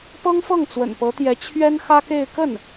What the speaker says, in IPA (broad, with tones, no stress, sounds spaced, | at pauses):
p ɤ˥ ŋ f ɤ˥˩ ŋ t͡s w ə̰˨˩ n p ɤ˧˥ t̪ j ɛ˧˥ t͡ɕʰ ɥ ɛ˥ n x ä˥ k e˥˧ ɪ̯ k ə˥˩ n